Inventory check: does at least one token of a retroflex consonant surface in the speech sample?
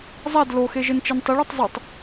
yes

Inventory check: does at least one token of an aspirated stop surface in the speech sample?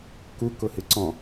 no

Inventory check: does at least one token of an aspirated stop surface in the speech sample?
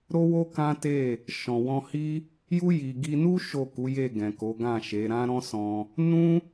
no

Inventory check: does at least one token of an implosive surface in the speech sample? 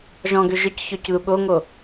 yes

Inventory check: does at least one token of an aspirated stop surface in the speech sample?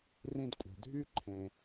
yes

